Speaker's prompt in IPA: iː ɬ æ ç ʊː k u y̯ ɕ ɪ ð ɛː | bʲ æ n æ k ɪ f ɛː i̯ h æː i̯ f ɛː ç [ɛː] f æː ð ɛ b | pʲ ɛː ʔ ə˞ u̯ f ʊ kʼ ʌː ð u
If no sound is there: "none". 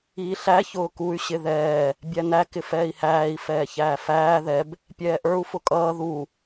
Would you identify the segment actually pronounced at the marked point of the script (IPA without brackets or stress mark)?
æː